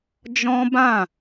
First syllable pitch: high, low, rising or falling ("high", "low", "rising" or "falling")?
high